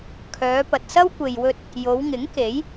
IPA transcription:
kʰ œː˨˧ p ɐ˨ t̚ s ɐ˥ w kʷ e˨ j w ɵ˧ t̚ | j o˨˧ w ŋ ɪ˨˥ ŋ k e˨˥ j

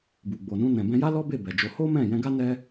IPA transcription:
b u˨ ɡ͡b o˨ n ũ˧ n ɛ̃˨ b ɛ̃˧ j a˦ l ɔ˦ b e˦˨ b ɛ˨ d͡ʒ o˧ h o˦ m ɛ̃˦˨ j ɛ̃˧ ɡ a˦ n ɛ˦

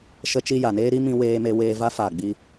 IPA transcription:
ʃ ə˦ t͡ʃ i˦ j a˨ n eː˦ ɾ i˦ m ĩ˦ w eː˦ m e˦ w eː˧ v a˦ f a˦˨ ɡ͡b i˦

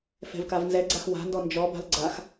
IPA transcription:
f ɛ̤ v k a v n z ɛ ɡ͡ǀ a x w a̤ n d ɔ n d͡ʒ ɔ b a̤ l ɡ͡ǀ a x

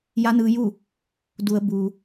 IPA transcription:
j a˧˥ n ɯː˧ j u˥˨ | d u˩˧ ə̯ b u˩

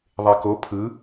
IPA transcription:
ðˤ e k o pʰ ɯ

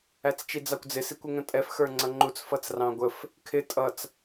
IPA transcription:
æ t͡s t͡ʃ i d͡z ɑ kʷ d͡z ɪ s i kʷ ɪ ŋ ə̃ tʼ ɛ f x ə˞ ŋ͡ǀ ʌ ŋ͡ǃ u t͡s f ʌ t͡s r ɑ̃ ɡʷ ə f | kʰ ɪ tʼ ʌ t͡s

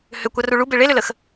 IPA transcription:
h ʏ kʷ a r u ɭ u b e ɭ e l ʏ l ə x

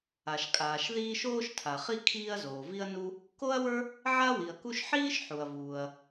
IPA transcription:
a˩ ʃ kʼ aː˩ ʃ ð iː˥ ʃ oː˥ ʃ tʰ a˩ χ i˥ kʰ iː˥ ɐ̯ z oː˩ v i˥ ɐ̯ n u˥ | k o˥ ɐ̯ w ə˞˥ | ʕ a˥ w i˩ ɐ̯ k u˥ ʃ ħ iː˥ ʃ ħ u˩ ɐ̯ v uː˩ ɐ̯

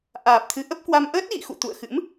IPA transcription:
ʔ aː˨˩ p̚ t̪ʰ ɨ˨˦ ʔ ə˦˥ p̚ k w a˧ m ʔ əː˦˥ t̚ ɣ ḭ˧˨ x ṵ˧˨ t̪ ṵ˧˨ ə̯ x ɨ̰˧˥ m

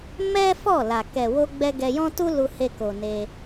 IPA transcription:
m ɛ˦ f ɔ˦˨ l a˨ k ɛ˨ w o˧ ɡ͡b ɛ˧ ɡ ɛ˧ j ɔ̃˦ t u˦ l u˧ h e˧ k o˨ n e˧

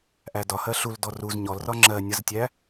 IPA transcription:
ʔ æ d ɒ h ɜ ɬ u l d ɔ r u z ɲ ɔ l r ɒ ŋ͡ǁ ɜ nʲ ʌ z tʲ æ

